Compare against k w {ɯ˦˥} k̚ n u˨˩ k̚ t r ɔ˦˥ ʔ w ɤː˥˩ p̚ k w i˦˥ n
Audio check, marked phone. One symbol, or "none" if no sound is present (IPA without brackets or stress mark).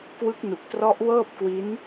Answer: ɯ˦˥